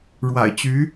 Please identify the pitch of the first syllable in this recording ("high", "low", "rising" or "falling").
low